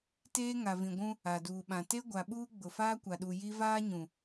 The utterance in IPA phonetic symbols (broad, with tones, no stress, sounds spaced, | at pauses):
t eː˦ ŋ a˨ v ĩ˨ ɡʷ ũ˦ | a˨ d uː˨ ɓ ã˨ t e˦ ɡʷ a˨ ɓ uː˦ ɡ͡b ʊ˨ f aː˦ kʷ a˨ ɗ u˨ j i˦ v aː˦ ɲ ũ˨